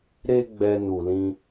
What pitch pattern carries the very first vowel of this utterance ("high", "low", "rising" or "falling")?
high